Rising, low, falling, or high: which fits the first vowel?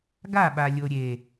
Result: falling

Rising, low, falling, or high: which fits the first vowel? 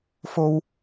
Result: high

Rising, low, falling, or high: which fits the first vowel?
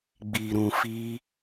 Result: low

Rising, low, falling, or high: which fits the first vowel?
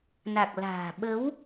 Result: low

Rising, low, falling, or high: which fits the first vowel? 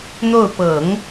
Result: falling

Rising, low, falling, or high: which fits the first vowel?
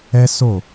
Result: high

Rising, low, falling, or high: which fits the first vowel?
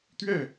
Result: falling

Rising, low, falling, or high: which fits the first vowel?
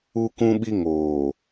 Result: high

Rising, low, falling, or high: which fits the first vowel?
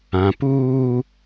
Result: low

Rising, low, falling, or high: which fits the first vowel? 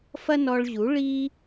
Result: high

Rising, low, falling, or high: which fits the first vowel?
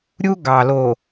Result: high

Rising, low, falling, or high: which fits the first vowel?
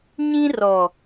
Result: high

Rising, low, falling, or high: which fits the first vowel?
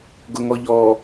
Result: low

